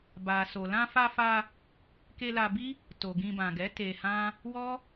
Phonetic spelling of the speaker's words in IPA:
b a˨ s o˨ l ã˧ f a˧ f a˧ | k e˧ l a˧ b i˦ | t o˨ ɡ ĩ˧ b ã˨ ɡ ɛ˨˦ t e˧ h ã˦ | w ɔ˦

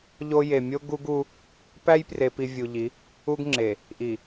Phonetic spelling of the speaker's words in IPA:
ʎ o˦ j e˨ mʲ o˦ ɡ u˦ ɡ u˦ | p æ˦ j p r e˨ p i˨ vʲ u˨ ʎ i˨˦ | u˦ ɡ ŋ͡ǁ e˨ | ʔ i˨

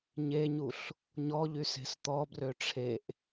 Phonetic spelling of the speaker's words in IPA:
ɲ e ɲ u ɬ | ɲ ɔ ʎ y s e̤ s t̪ ɔ b r ø ʈ͡ʂʰ e ʔ

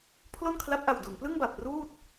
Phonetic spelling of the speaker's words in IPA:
pʰ l o˥˩ n kʰ l a˦˥ p̚ ʔ a˨˩ w d u˩˦ n p l ɯ˥˩ ŋ b a˨˩ p̚ r uː˥˩ t̚

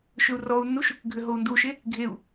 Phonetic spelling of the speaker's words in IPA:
ʃ ʏ u̯ r ɔ u̯ nː u ʃ | ɡʱ ʏ ɦ o u̯ n d u ʃ e | ɡʱ e u̯

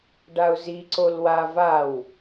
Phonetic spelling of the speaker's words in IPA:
ɖ a ʊ̯ z i ǀ o l w a v a w

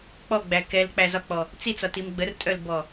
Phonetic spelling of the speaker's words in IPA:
k͡p ɔ ɡ͡b æ k ɛ l k͡p æ z ɒ k͡p ɔ | t͡s i t͡s ɒ t i m ɡ͡b ə r tʼ œ l b ɔ

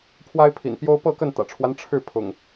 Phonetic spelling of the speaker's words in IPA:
pʰ w a˦ ɪ̯ pʰ ḭ˨˩ n p j o˦ ʊ̯ p ɤ˥˨ k ə˥˨ n t̪ ä̰˨˩ ʈ͡ʂʰ w a˦ n ʈ͡ʂʰ ɻ̩˥˨ pʰ ʊ̰˨˩ ŋ

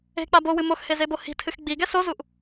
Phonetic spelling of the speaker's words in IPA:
e̤ k͡p a b o w ɨ m o x h e z e b o h i̤ tʰ ɨ x ɡ͡b i ɡ ɛ s o z u ʔ

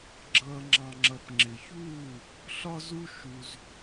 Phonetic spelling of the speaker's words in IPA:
ɡ͡ǁ ʌː˨ ŋ͡ǁ ɑ̃˨ ŋ͡ǁ ʌ˨ p ŋ͡ǁ ɪ˨ ç uː˦˨ | ɬ ɒ˦ z u˦ ʃ u˧ z

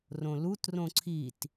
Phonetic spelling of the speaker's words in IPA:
r õ l u t r õ ǀʰ i t

